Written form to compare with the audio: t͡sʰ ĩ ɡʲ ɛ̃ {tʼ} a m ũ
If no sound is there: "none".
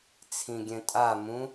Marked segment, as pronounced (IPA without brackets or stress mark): tʼ